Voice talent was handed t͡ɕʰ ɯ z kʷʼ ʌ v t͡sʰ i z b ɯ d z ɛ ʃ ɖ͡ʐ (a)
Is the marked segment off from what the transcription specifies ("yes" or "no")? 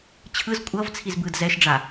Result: no